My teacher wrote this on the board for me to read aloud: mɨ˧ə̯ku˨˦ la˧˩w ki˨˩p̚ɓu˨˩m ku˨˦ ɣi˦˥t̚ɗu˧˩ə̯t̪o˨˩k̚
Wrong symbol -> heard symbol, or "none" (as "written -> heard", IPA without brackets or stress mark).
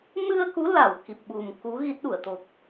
none